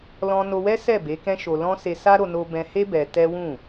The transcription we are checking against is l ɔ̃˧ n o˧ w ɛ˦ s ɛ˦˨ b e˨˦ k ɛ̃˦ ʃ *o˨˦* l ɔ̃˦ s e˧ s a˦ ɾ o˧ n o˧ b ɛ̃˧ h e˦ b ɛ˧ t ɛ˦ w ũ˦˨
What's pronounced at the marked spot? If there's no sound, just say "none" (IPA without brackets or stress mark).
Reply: o˧